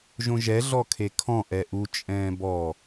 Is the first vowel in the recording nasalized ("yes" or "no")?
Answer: yes